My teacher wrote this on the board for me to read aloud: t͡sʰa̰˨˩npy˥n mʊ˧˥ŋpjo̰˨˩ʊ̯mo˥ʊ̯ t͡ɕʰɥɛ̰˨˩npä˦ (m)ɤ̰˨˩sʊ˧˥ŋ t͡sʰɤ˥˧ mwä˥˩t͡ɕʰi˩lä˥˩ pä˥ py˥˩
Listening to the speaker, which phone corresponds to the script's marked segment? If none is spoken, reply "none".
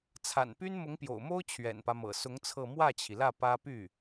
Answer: m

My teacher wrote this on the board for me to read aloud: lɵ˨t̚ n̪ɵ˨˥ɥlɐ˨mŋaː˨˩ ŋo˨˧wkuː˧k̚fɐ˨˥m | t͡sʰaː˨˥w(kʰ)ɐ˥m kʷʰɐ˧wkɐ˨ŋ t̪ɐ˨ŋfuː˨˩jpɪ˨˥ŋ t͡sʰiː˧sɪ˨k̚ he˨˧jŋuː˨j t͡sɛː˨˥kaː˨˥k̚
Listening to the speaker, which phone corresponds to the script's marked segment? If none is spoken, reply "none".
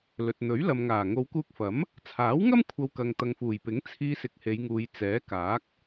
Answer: ŋ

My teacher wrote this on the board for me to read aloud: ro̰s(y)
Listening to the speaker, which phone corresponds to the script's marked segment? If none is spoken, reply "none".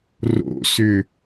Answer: ʏ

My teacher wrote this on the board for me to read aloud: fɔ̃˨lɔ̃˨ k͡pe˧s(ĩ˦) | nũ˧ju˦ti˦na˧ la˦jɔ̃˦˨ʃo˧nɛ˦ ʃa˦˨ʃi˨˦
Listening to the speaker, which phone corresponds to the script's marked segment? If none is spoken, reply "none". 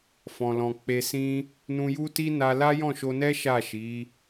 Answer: ĩ˦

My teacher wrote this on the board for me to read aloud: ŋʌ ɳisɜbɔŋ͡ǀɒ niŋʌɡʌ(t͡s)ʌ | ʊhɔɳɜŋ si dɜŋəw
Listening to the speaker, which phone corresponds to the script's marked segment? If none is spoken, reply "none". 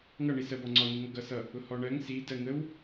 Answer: s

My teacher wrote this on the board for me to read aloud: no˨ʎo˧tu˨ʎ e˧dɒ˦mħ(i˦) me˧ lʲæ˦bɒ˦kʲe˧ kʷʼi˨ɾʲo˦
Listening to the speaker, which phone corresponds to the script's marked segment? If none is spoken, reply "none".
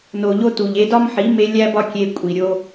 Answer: i˨˦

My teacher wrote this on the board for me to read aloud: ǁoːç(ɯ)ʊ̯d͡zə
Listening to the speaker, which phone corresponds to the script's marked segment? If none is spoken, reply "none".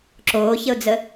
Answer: ə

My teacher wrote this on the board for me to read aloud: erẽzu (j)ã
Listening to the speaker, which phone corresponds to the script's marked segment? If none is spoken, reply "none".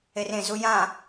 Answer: j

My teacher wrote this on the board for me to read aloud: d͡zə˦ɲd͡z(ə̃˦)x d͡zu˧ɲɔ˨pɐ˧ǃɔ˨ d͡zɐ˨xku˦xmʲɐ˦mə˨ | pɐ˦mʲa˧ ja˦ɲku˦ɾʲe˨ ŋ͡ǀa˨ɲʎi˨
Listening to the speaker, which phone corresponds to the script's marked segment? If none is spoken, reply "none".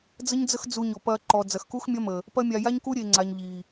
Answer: ə˦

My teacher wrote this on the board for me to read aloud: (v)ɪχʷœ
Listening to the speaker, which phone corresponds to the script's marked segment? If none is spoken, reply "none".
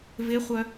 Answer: v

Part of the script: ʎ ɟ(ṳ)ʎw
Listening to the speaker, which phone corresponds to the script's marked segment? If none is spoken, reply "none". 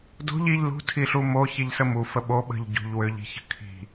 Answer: ṳ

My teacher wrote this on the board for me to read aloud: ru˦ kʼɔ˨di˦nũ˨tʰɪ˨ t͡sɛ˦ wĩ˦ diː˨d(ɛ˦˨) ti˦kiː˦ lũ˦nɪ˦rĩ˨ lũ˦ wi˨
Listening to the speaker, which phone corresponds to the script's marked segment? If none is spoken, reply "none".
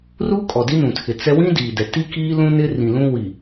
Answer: ɛ˨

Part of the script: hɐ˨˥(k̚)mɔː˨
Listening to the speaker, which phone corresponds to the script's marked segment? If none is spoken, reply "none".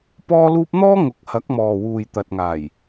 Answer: k̚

